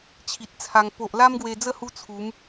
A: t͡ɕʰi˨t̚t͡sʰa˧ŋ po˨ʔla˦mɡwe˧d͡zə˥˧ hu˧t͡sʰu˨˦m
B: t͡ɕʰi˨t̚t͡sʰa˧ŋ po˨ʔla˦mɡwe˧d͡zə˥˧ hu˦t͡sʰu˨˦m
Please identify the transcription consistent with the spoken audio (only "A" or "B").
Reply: B